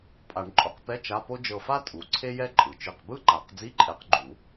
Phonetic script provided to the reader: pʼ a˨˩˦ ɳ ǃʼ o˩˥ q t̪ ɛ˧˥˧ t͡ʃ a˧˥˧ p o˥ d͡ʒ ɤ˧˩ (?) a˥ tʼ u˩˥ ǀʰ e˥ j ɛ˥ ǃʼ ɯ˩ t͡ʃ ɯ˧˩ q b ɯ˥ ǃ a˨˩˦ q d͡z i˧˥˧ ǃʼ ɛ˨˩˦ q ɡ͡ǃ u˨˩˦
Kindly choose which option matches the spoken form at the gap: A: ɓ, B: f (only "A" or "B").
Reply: B